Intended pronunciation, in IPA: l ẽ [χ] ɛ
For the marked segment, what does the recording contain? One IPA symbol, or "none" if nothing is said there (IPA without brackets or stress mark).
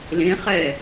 χ